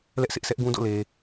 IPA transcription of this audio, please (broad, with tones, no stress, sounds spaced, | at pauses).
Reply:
l ɛ˦ ʔ sʰ ɪ˦ ʔ s ɛ˦ ʔ ɡ ũ˦ d o̰˦˨ l e˦